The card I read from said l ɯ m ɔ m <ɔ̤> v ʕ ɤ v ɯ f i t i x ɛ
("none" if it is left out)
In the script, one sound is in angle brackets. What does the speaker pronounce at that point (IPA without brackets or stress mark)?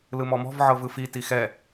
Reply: ɔ̤